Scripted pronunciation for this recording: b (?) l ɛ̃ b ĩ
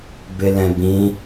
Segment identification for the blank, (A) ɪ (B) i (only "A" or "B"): A